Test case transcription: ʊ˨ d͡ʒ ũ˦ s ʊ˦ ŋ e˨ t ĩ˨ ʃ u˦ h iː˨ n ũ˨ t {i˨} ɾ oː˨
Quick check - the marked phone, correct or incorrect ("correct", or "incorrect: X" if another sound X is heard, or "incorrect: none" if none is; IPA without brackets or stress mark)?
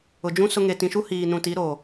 incorrect: i˨˦